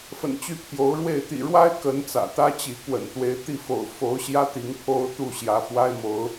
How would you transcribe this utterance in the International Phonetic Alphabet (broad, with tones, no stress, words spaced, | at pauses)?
fə̰˨˩nt͡ɕy˦pʰjo˨˦ʊ̯ɻwe˥˨ɪ̯ t̪ḭ˨˩ɻwa˦ɪ̯ kə˨˦n t͡sä̰˨˩t̪ä˦t͡ɕi˨˦ kwə̰˨˩nt̪we˨˦ɪ̯t̪i˥˨fo̰˨˩ʊ̯ fo˨˦ʊ̯ɕjä˦ t̪i˨˦ŋpʰo˦ʊ̯ t̪u˥˨ɕjä˨˦ fwa˦ɪ̯mo˨˦ʊ̯